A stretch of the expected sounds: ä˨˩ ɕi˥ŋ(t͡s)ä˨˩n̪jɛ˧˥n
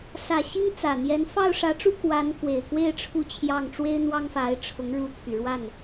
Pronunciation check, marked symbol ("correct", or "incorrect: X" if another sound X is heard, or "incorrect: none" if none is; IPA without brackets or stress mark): correct